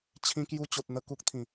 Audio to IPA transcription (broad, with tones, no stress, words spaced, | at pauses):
t͡ɕʰĩ˧kju˧ t͡ɕo˨t̚n̪ə˧ ku˦k̚t̪ʰĩ˨˩